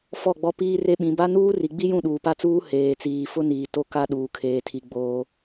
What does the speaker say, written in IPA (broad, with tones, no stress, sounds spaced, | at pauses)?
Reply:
f ɔ˦˨ ɡ͡b ɔ˦ p iː˦ r e˦ ɓ ĩ˨˦ b a˦ n uː˦ r i˨ ɡ͡b i˦ j ũ˦˨ ɗ uː˨ p a˦ t͡s uː˦ h eː˨ t͡s iː˨ f ʊ˦ n iː˨ t o˦ k a˦ ɗ uː˨ kʰ eː˨ tʰ i˨ ɡ͡b oː˦